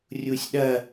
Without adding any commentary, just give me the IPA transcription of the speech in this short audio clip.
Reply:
rʲusʲɗɐ

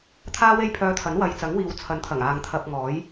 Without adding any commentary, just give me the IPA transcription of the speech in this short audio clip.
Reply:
t̪ʰaː˥we˥jpʰœː˧t̪ʰɐ˨˥n wɐ˨jt͡sɐ˨˥ŋwiː˨w t͡sʰɐ˨˥nt̪ʰɐ˨˩ŋaː˨ŋ t̪ʰɐ˧p̚ŋɔː˨˥j

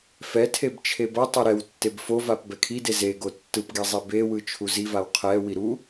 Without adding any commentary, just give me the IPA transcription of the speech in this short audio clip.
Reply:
fɛtʰeb t͡ʃʰebʌtˤʌ ɾɛwtːeb fovap bɛkʰide zeɡo tːɯpɡe zˤibewɯ t͡ʃʰuzivaw qʰɛwi ɾu

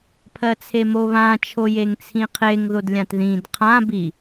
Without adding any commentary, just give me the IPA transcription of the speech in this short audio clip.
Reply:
pʰɜt͡sʰemoβã t͡ʃʰojeŋt͡sʰĩqʰeŋ ðodlʲãtðĩd qʰã bi

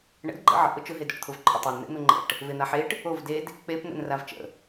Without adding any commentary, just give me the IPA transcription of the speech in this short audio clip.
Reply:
ɳə̰dɡ͡ǃə̰ ʕə̰ʔʊ t͡ʃʊɦedoʈt̪ʰʊv ǃʼʊtˤen n̪ḛn̪ʊŋ͡ǃə̰ʈ | ven̪aħeʈ | ov ded | k͡pepn̪ə̰n ravt͡ʃə̰

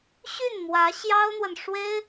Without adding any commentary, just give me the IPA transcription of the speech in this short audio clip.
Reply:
ɕy˥˩n mwä˧˥ ɕjɑ˥ʊ̯n̪wə˨n ʂwe˥ɪ̯

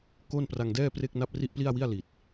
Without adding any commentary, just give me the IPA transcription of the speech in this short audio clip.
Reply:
ko˥˩n pra˧ŋdɛː˥˩pre˥˩k̚ na˥˩p̚ri˥˩ʔpli˥˩a̯wi˥˩a̯ li˨˩t̚

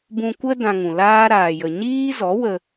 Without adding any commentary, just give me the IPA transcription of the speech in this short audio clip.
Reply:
bũ˧kʷə˦ dã˧ŋũ˨laː˦ ɾaː˨jə˨ ɲiː˦zɔ˨˦wə˧

